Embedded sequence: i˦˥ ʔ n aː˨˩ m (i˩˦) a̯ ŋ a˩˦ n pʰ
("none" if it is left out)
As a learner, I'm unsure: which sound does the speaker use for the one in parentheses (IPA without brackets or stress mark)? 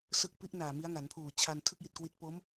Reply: i˦˥